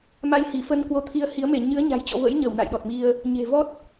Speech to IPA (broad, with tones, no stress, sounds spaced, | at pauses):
m a˧ j h i˧˩ f ə˧ n k w o˧ t̪ʰ i˧ ə̯ h i˨˦ ə̯ m e˧˩ ɲ ɨ˨˦ ə̯ ɲ a̤˨˩ j t͡ɕ ɔ̰˧˨ v ə̰˧˥ j ɲ ə˧˩ w n a̰˧˨ j ɗ ɔ˨˩ t̚ m i˧ ə̯ | ɲ e̤˨˩ v ɔ˦˥ t̚